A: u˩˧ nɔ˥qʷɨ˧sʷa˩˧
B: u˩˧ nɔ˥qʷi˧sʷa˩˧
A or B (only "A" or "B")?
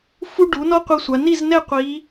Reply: B